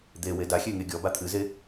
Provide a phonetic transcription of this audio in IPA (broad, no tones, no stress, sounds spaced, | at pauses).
d̪ e w e d a xʲ e ŋ e ɡʲ ɔ b a t̪ʰ ɨ z e